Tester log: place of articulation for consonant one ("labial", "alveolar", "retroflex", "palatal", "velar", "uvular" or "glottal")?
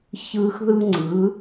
palatal